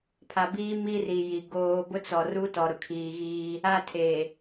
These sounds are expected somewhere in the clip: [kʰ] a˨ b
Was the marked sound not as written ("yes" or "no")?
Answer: yes